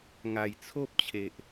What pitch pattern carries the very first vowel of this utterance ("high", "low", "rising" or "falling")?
low